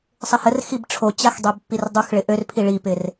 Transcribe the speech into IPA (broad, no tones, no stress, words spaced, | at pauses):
sˤɪhərxib ʈ͡ʂʰot͡ɕax dˤøbpːirdˤuxɭɪ ʔørpʰi ɭipɪr